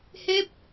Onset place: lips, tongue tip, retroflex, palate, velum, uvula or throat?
throat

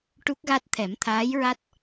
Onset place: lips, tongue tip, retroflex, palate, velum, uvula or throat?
retroflex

